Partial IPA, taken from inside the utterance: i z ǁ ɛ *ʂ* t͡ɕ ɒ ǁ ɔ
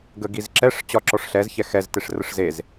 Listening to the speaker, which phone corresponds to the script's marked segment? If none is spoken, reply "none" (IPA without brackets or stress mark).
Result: ʂ